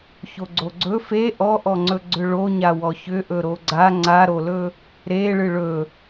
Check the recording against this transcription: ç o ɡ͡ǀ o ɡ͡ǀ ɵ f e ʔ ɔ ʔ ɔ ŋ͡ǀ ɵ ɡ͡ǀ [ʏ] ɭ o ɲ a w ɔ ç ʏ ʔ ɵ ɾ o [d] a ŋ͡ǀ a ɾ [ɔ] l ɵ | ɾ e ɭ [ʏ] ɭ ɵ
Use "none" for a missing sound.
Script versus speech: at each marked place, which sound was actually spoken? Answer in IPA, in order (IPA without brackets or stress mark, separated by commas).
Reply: ʏ, ɡ͡ǀ, o, ɨ